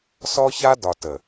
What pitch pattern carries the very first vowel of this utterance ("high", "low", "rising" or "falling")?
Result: high